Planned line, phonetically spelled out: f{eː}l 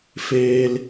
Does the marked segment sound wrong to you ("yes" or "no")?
no